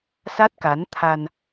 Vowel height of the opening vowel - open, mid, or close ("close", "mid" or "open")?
open